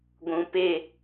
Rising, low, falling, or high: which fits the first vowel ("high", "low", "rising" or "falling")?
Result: low